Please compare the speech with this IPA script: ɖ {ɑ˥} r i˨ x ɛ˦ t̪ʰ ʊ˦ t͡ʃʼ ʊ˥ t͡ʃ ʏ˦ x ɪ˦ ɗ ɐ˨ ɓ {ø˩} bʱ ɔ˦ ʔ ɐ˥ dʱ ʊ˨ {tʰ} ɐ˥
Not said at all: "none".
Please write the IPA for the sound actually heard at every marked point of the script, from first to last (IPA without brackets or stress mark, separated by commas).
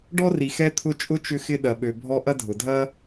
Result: ɔ˥, ø˨, dʱ